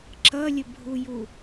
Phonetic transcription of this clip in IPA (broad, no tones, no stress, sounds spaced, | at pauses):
ǁ ʌ lʲ ə bʱ u j u